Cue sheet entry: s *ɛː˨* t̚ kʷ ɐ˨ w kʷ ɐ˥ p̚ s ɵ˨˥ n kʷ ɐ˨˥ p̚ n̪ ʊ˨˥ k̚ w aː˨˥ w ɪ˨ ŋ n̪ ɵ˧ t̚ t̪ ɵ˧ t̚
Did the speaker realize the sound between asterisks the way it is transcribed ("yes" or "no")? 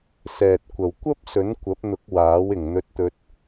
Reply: yes